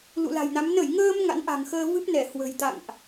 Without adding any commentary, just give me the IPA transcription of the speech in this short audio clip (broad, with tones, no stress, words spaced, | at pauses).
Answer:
lṵ˧˨la̤˨˩jna˨˦m nə˧˩jŋəː˧m ŋa̰˧˥nʔa̤˨˩ŋxəː˧ vɨ˦˥p̚ nɛ˧˩hwə̤˨˩jt̪a̰˧˨ŋʔ